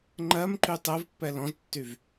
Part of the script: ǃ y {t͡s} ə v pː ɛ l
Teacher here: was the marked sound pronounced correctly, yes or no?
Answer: no